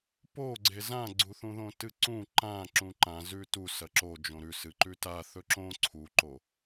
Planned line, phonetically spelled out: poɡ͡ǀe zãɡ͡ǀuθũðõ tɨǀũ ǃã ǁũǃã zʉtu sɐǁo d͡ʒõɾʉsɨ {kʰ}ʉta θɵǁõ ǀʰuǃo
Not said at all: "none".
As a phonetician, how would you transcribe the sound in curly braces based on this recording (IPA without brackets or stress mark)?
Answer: ǃ